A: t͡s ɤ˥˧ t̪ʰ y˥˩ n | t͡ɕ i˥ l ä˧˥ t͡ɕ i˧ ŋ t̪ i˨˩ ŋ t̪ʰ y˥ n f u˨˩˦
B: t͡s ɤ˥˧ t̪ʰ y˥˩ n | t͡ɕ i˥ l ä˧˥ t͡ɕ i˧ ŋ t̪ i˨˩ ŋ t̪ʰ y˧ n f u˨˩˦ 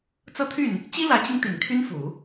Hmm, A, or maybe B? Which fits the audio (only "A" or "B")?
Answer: A